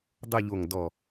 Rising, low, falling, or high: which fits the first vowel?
falling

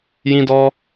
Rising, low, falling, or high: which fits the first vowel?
high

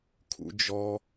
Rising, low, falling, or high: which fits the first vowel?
high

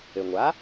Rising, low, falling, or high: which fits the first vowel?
low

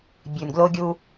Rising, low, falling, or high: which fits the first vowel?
low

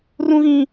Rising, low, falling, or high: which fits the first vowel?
high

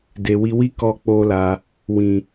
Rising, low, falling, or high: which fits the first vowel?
low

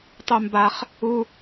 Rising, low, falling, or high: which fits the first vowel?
high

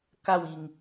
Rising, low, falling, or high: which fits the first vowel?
falling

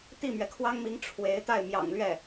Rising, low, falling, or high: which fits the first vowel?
falling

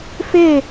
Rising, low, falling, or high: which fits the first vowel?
falling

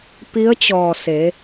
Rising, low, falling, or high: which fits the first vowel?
rising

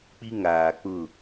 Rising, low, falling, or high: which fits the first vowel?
high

